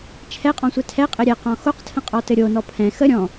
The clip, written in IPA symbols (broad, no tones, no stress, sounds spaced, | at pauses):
t͡ʃʰ ɛ qʼ ɔ̃ sʷ ɛ tʰ ɛ qʼ ɘ ɾʲ ɛ q ɔ̃ x o q tʰ ə̃ qʼ ɔ t ɘ ɾʲ o n ɔ pʰ ɛ̃ x ə ɾʲ ɔ̃